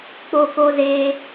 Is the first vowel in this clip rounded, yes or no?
yes